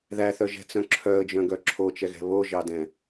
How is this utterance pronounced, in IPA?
ðæθœʒɛ̤t͡sœ̃ ǁʰœə̯d͡ʒœ̃ɡœ ǁʰot͡ʃɛɣɛ̤ βoʒɑdɛ̃

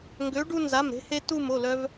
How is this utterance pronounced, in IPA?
ŋɡø˩˥ɖu˧ nza˩˧˩mɾe̤˧he˧ tu˧˩m o˩˧˩lœ˧v

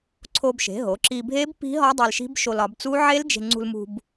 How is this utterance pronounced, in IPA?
ǀʰo˧bʃe̤˩˧ɦo˩˧ ǁi˧bʱe˦˥b pi̤˦˥ɦɒ˦˥ dˤe˧lʃi̤˦˥b ʃo˧lɒ˩˧bt͡su˦˥ ʕe˦˥ld͡ʒe̤˧ŋ͡ǀṳ˧lmṳ˧b

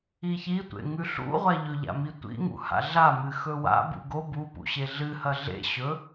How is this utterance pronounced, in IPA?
içitʷḛ ŋʉɬṵʁʷa ʎɵʎa̰ mitʷḭŋṵ ha̰ɮamɨ xɵwa̰ bṵɡo bupṵɕe ɮɨhɐ ɮḛ ɕɵ

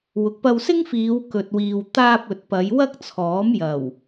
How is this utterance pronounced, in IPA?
wʊ˨k̚pɐ˧wsɪ˥ŋfiː˨˧w kɵ˨t̚wiː˨w t̪aː˧p̚ ɵ˨t̚pɐ˨˧j wɐ˥k̚t͡sʰɔː˨˥mjɐ˨˩w

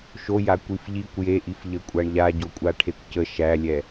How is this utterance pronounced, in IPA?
ʃoja kʷifʎikʷ jeʔif ʎəkʷʼaɳʎa ɟokʷʼaʈʰekʷcə ʃælʲɛ

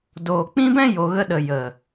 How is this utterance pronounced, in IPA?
doː˨k͡pĩ˦ bɛ̃˦ jo˨ɣə˧ɗə˨ jə˨

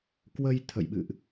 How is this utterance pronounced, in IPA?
kwə˧j t̪ʰə̰˧˨jɓɨ̰˧˨ʔ

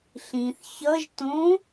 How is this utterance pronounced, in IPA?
ɬĩθ çʌʒ tõ

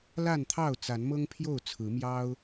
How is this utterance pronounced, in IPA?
la˥˨nt̪ʰɑ˥˨ʊ̯ t͡sa˨˦nmɤ˦ŋpʰjo˥˨ʊ̯ t͡sʰɹ̩˨˦mjɑ˦ʊ̯

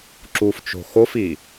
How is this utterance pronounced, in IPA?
ǁuft͡ʃo̤ xofi

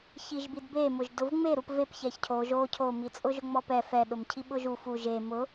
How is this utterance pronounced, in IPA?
çiʒbidbemʊʒ dʊvŋ͡me ɾupvep çɛçcʰo ʒo cʰomit͡sʼʊʒʊ ŋ͡mɔpɛ fɛɗʊm cʰiɓʊʒu fu ʒe mʊ

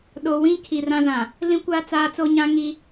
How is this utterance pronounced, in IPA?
ɗo˨wĩ˦ kʰi˨rã˦zã˨ | lĩ˦kʷa˦ t͡saː˦ t͡so˦ɲã˦ŋi˦

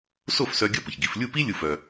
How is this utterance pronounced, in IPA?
so˥˩fsœ˧ ɡʲʌ˥pə˩çɡi˩˥f lʲu˥˩pi˥ lʲu˥˩fœ˧

